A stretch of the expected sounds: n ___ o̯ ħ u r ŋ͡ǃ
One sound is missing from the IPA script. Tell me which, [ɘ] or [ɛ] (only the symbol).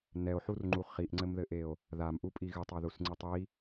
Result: ɛ